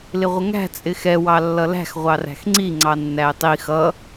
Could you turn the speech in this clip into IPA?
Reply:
lɪʁʷəŋæ̤ t͡sʼɪxɛ wɑlːʌlæ̤x ʁʷɑræ̤xŋ͡ǀi ŋ͡ǀɑnːæɪ̯tˤi xʌ

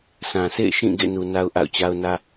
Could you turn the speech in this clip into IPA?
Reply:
sʰã˨sʰḛ˦˨ɪ̯ʃĩ˦˨ ɡḛ˦˨nu˨ na˦ʊ̯ʔa̰˦˨ʊ̯t͡ɕa˦ʊ̯nä˦

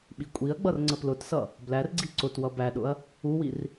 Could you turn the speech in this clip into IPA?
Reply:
ɓikʷʼiɐ̯ɡ͡bʌr ŋ͡ǀəplʊtsʌ | blærɡ͡ǀi ǀʊtwʌ bæɗʊɐ̯ | uwir

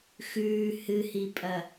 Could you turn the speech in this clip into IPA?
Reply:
xʉː hɨhipʼɐ

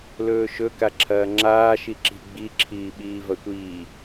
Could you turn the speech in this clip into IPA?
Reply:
lɵːʃɵ kaǁʰɐːŋ͡ǁaː ʃiǁi̤ ɡ͡bi ǁʰiːɓiːvɐtʷiː

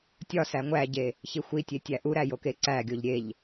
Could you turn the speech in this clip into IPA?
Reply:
tʲɒ sæŋʷæɟe | çixʷitʲe tʲæʔuɾæ jokeǀæɡʲoʎ ɾʲeʎ

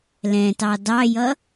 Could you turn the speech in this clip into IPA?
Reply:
lɛ̃tɑ dɑjʌ

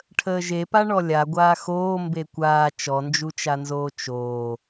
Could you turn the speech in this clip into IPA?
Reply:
ʈʰəːʒepa ɳɔlʲa ɡʷaːxoː mbekʷaː t͡ʃɔnd͡ʒut͡ʃanzoː t͡ʃoː

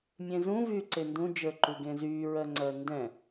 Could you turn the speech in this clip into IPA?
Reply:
mʲẽzũ vyːǀendũ d͡ʒə˞ǃuɡẽzyː ɹɜŋ͡ǀɜndɛ̃

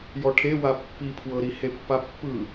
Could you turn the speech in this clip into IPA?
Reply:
jɔʈʰewa pːipʰwɤɾi hepːapːɯ

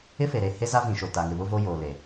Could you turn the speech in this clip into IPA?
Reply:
ɪ˦fe˨ɾe˨ he˦za˦vĩ˨ ʃo˨ta˨ŋɪ˨ βʊ˦vo˦joː˨ le˨

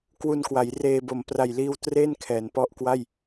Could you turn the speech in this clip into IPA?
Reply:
kwu˧nkwa˩˦jreː˧bo˨˩m pra˨˩jliː˧w tre˥˩n kʰɛː˩˦npɔ˦˥ʔkwa˥˩j

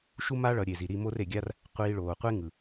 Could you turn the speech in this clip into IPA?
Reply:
ʃu˦ ma˦ ɭʌ˨˦ɾʲe˨zi˨ ɾi˧mo˦r e˨ɡʲa˦r | qʷiː˧ɭoː˨qʷe˦ ŋɯ˨

